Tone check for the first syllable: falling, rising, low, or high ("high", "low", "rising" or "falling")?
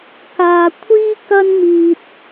low